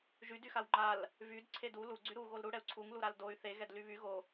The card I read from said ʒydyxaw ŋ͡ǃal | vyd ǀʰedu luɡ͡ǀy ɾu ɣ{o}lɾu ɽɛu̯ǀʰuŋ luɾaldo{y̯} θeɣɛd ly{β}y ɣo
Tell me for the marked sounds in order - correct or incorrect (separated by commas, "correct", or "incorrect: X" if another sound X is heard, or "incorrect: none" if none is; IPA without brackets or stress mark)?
correct, correct, correct